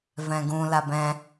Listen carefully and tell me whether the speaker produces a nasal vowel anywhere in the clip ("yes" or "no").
yes